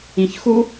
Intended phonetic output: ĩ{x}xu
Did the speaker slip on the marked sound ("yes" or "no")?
yes